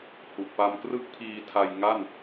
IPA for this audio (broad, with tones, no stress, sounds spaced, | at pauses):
h u˨˩ ʔ p a˧ m k r ɯ˥˩ k̚ pʰ iː˧ tʰ a˧ j ŋ a˥˩ n